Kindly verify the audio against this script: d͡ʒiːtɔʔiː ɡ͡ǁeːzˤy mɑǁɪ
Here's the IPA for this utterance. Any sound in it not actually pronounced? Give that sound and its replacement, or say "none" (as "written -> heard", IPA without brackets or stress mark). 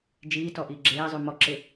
ɑ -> ɔ